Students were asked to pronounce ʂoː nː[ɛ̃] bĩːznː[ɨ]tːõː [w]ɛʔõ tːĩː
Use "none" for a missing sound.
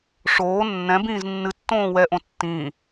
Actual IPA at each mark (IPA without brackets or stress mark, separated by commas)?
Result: ɛ̃, ɨ, w